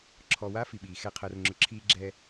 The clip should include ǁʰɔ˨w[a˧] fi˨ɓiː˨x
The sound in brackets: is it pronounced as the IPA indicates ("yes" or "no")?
no